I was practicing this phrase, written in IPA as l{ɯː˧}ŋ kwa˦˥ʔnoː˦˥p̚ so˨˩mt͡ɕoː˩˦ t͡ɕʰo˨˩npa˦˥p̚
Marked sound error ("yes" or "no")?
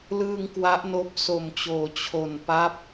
no